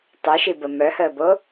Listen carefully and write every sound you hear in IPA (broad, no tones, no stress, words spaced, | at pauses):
tˤoʃibə mœhəːbo